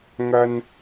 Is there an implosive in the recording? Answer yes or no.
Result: no